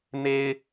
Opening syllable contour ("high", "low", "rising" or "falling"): high